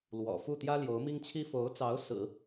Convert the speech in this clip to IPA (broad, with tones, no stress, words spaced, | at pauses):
lwɔ̰˨˩fu˥˩ t̪jä˥ljo˧˥ʊ̯mi˥ŋt͡ɕʰi˥ fo˧˥ʊ̯t͡sɑ˧˥ʊ̯ sɹ̩˨˩˦